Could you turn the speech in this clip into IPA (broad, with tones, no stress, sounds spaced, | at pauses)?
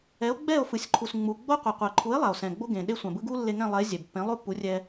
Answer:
ɛ˩˥ o̯ ɡ͡b ɛ˥˩ o̯ f ɯ˩ sʲ ǃʰ u˩ s ŋ͡m u˩ ɡ͡b o˥ qʷ ɯ˩ qʷ ɛ˩ ǃʰ u˩˥ e̯ lˠ a˩ o̯ s ɛ̃˩ ɡ͡b o˥ ɡ ẽ˩ ɗ e˥ sʷ ã˩ b ɯ˥ ɡ u˥ lː e˧ ŋ ɛ̃˥˩ lˠ ɛ˩˥ e̯ zʲ ɛ˩ b pː ẽ˩˥ lˠ o˥ pː u˩˥ rʲ ɛ˧